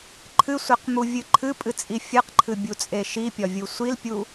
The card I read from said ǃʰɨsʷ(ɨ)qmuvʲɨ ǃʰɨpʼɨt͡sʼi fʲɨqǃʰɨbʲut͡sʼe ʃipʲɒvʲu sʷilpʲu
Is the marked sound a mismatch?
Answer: yes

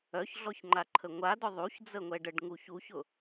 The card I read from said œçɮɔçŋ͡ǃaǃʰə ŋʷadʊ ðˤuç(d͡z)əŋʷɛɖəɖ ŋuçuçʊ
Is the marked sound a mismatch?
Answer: no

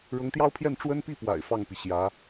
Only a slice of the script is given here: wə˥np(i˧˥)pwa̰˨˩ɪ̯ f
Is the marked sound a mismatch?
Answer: yes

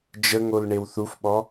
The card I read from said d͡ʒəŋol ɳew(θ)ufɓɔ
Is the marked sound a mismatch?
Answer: no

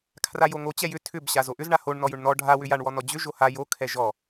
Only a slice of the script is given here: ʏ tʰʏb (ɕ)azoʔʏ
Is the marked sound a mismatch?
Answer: no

